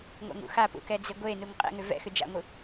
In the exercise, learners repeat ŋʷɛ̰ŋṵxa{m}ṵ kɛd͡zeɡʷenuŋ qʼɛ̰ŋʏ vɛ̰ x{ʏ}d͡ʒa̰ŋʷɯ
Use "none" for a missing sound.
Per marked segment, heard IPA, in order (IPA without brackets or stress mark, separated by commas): p, ʏ